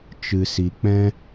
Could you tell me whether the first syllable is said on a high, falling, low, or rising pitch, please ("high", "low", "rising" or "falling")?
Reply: low